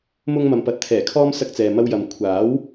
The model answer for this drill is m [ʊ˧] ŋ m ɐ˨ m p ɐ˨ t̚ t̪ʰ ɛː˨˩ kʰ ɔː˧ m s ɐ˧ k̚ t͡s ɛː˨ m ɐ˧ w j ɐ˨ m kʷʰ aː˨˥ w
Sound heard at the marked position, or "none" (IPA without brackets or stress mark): ʊ˧